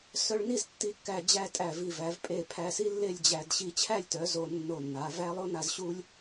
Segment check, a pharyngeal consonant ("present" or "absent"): absent